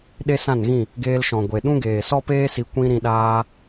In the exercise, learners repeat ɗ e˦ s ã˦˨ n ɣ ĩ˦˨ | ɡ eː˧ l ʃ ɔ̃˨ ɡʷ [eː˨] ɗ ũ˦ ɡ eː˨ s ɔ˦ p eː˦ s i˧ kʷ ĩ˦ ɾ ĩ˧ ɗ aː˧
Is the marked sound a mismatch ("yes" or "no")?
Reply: yes